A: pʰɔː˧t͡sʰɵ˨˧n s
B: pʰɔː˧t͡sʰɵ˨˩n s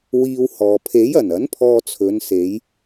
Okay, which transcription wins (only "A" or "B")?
A